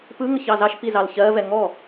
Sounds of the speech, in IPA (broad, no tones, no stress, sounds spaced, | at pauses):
p ɯ ŋ ə ç ɑ z ɑ ʃ p i z ɑ l ç ɜ v ɛ ŋ ɔ